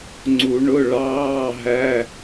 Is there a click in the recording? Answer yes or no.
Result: yes